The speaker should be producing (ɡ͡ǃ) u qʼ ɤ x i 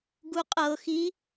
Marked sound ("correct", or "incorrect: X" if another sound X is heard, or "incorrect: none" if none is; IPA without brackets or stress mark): incorrect: ɡ